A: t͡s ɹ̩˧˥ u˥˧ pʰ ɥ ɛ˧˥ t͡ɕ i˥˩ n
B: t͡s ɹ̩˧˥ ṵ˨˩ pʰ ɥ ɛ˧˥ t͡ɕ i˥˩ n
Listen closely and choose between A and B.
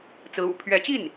B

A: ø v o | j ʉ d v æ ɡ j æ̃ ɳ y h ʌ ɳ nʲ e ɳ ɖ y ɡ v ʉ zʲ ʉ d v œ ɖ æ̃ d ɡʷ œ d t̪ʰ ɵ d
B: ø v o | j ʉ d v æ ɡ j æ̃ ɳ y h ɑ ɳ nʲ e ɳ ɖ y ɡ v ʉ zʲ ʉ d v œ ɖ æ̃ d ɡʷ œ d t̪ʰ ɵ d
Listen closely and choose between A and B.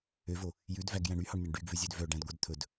B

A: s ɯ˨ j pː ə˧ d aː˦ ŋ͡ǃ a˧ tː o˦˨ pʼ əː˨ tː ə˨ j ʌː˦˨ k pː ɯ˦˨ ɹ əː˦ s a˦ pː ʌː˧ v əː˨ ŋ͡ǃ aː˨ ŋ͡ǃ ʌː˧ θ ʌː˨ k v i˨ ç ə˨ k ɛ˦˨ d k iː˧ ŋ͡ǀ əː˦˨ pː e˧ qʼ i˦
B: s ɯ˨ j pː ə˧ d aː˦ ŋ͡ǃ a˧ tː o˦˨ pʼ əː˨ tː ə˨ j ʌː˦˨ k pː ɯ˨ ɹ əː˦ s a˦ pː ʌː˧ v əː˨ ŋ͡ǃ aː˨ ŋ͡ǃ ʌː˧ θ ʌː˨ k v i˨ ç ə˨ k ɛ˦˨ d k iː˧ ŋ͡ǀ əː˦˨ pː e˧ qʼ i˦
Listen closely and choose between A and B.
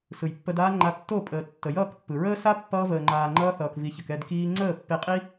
B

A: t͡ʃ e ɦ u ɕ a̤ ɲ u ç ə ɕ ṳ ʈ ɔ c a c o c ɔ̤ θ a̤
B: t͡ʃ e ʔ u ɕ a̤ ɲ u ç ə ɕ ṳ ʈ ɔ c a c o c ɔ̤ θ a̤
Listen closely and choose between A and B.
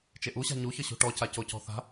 B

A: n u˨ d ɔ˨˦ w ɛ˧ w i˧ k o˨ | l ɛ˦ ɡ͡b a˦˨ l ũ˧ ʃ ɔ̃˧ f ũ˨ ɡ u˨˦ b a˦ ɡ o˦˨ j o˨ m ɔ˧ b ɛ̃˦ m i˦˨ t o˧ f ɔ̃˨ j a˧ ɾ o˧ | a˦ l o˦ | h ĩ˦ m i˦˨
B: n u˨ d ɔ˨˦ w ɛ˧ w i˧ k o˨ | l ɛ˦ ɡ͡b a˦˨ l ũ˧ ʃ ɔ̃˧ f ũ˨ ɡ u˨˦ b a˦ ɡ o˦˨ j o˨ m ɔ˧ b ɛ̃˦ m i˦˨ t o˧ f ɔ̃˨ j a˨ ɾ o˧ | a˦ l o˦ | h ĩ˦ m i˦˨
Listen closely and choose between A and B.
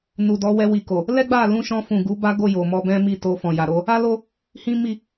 B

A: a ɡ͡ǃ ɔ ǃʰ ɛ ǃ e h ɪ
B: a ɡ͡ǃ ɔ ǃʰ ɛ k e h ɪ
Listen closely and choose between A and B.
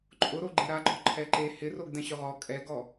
A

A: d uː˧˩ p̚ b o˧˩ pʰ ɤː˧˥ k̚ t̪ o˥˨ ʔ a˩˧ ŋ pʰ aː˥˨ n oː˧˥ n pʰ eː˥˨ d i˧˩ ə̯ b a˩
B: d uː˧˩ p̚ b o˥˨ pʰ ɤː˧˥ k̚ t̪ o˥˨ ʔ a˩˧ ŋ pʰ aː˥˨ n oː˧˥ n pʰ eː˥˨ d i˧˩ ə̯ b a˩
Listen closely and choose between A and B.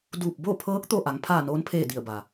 B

